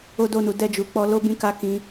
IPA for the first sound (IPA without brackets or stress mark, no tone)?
o